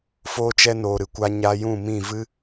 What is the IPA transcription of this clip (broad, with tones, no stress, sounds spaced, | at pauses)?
f oː˧ t͡ʃ ɛ˧ n oː˨ ɾ ɨ˨ kʷ a˧ ɲ aː˧ j ũ˦˨ m ĩ˦˨ v ɨ˦